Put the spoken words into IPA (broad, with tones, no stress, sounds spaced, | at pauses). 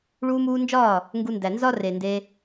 ɭ uː˧ m uː˧ n d͡ʒ ɒː˦˨ | ŋ ɡ u˧ n d æ˨ n z ɒ˦ r e˨ n d e˧